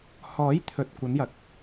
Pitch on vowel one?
rising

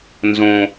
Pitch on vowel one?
low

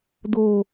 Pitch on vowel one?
high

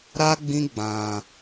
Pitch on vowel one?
high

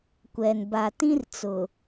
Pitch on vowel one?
low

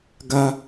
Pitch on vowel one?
high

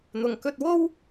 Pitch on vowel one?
low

